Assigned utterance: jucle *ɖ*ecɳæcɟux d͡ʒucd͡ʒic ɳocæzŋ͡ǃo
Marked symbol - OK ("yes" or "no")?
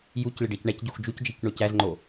yes